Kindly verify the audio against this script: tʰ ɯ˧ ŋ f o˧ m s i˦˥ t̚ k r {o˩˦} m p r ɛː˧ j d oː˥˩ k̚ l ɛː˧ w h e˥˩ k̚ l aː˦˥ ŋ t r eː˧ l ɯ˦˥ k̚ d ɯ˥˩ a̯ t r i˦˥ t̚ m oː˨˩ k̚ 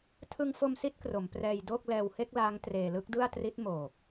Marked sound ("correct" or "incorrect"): correct